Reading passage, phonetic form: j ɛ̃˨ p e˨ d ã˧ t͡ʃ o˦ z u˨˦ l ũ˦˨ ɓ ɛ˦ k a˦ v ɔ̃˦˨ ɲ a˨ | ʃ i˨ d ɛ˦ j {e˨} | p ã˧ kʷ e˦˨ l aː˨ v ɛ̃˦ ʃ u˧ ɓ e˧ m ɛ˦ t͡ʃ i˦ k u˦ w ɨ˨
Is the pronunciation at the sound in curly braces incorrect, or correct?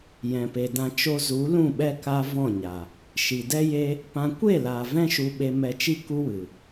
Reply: incorrect